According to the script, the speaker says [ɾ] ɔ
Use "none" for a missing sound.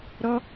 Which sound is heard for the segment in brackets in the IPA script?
ɾ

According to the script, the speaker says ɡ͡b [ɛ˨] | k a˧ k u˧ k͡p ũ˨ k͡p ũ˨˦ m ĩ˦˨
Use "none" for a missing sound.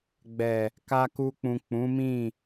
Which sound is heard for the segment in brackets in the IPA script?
ɛ˨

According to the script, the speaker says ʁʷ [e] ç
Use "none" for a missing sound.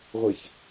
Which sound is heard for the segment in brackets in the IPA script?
e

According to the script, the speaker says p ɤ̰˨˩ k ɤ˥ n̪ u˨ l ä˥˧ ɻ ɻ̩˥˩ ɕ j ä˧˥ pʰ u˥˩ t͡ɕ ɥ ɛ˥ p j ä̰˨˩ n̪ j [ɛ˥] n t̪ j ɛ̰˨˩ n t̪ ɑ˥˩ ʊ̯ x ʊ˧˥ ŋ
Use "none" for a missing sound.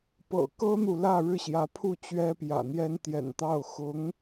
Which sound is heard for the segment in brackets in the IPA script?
ɛ˥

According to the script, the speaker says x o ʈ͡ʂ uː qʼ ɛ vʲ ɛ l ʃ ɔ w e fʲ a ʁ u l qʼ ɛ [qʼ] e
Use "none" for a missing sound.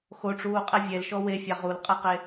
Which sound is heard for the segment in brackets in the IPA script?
q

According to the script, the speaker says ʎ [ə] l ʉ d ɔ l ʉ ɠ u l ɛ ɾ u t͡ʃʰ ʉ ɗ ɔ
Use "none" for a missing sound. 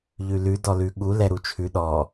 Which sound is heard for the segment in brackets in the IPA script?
ʉ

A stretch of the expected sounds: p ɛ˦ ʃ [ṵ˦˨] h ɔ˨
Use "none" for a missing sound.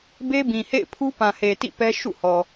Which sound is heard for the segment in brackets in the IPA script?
ṵ˦˨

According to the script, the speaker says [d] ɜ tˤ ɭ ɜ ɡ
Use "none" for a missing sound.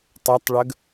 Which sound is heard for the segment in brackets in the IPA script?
tˤ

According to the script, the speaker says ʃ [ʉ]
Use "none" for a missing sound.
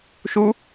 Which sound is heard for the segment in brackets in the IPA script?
u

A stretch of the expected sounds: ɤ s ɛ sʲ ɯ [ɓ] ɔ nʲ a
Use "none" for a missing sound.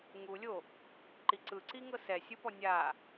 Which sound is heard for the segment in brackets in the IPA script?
p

